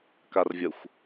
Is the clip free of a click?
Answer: yes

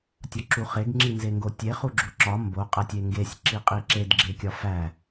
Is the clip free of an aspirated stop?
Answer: yes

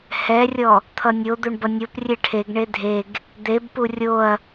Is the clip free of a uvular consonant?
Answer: yes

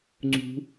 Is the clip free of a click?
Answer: no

